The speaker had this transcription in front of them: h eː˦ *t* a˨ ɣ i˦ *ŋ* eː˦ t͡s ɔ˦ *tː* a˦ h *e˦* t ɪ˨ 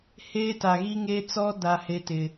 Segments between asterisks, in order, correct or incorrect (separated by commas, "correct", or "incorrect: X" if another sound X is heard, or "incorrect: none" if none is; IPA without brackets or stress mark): correct, correct, incorrect: d, correct